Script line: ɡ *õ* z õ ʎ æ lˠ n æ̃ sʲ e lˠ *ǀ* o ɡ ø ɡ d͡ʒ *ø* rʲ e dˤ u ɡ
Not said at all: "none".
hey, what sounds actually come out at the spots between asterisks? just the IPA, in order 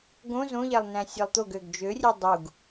õ, t̪, ø

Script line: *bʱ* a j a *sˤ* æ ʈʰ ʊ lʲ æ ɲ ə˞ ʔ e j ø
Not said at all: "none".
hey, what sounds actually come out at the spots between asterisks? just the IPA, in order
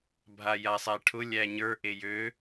bʱ, sˤ

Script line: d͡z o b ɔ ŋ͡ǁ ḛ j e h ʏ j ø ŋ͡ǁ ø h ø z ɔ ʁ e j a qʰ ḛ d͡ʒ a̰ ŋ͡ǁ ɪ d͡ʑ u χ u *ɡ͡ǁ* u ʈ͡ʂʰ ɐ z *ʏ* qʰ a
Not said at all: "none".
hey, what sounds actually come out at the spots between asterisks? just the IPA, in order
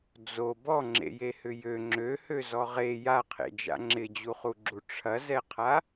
ɡ͡ǁ, ɛ

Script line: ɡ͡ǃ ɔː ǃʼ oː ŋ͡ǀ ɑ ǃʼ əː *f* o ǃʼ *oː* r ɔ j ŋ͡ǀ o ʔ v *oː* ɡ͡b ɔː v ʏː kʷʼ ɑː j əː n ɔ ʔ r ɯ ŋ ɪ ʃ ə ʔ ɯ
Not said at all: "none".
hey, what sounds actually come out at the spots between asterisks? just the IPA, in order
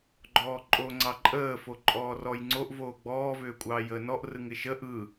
f, ɔː, oː

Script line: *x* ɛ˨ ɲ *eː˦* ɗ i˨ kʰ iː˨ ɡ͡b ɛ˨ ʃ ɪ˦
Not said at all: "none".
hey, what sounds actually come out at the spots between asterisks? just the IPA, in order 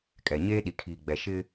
kʼ, eː˦

